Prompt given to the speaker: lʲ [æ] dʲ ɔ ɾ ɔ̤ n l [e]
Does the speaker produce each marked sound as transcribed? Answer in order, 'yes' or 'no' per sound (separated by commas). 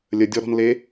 no, yes